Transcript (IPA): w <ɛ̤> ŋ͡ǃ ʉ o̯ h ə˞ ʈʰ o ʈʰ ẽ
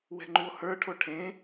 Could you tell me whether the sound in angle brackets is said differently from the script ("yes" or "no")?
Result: no